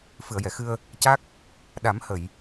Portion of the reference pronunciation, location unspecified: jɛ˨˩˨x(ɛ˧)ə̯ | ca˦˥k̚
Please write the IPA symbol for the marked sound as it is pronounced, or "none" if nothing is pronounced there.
ɨ˧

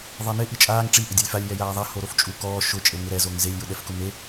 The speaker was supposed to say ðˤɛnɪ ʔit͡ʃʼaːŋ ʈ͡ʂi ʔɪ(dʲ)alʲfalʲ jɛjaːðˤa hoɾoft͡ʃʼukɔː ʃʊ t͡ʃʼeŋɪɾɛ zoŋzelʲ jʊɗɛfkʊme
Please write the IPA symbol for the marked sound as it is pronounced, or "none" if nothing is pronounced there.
dʲ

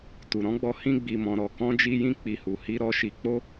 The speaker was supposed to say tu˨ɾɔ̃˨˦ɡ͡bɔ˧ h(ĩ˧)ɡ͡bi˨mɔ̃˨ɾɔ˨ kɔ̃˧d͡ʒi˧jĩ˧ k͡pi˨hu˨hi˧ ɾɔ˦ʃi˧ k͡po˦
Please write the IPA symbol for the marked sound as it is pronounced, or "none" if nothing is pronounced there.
ĩ˧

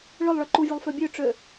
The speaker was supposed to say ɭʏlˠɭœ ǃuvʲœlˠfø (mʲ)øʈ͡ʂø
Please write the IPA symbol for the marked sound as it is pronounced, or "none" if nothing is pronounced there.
bʲ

